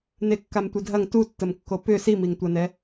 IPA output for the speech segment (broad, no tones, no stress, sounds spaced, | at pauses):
n e kː a m tʷ ɪ dʱ ɐ ŋ t u tː ə m kː o p ʏ s i m i ŋ tʷ ɐ n ɛ